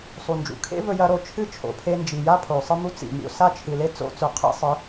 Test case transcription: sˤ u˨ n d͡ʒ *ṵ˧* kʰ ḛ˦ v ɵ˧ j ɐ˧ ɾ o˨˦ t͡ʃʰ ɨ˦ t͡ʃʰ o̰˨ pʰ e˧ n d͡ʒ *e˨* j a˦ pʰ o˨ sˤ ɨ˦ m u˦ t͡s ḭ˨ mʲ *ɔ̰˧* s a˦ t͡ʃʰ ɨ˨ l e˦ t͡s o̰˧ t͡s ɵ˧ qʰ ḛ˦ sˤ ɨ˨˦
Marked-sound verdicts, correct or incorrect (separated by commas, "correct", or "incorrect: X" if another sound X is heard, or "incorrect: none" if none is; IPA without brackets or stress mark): incorrect: ṵ˨, incorrect: i˨, incorrect: o̰˧